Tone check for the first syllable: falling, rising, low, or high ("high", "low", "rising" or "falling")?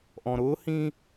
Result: low